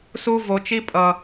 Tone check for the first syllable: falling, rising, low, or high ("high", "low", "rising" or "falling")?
high